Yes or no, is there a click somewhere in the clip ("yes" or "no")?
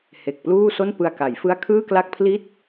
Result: no